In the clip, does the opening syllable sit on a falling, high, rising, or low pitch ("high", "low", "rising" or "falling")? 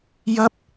high